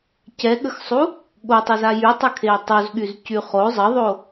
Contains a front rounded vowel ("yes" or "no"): yes